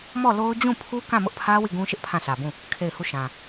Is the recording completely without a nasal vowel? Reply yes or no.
no